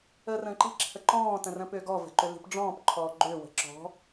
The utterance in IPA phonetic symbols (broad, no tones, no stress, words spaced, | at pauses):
əːrə̃ːǃi̤ ǁʰəǃɔ̃ː tə̃rə̃pʏːɡɔ və̤ǃʏli̤pɖ͡ʐɔ̃ːp ǃʰɔːɡ͡ǃʏː wə̤ǁɔ̤